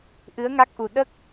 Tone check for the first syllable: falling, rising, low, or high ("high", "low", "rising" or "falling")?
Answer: rising